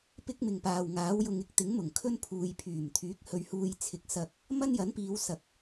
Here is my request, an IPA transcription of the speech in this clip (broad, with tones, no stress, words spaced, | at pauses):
pɪ˥k̚mɪ˨ŋpaː˨w ŋaː˨˥wjʊ˧ŋ ɪ˨˥k̚t̪ɪ˨˥ŋmʊ˨˩ŋ kʰɵ˥npʰuː˨jpʰyː˨˩m t̪ʰyː˨˥k̚hɵ˧ɥ huː˧j t͡sʰɪ˨˥k̚sɐ˧k̚ | mɐ˥njɐ˨˥npiː˨˧w sɐ˨k̚